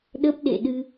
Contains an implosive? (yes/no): yes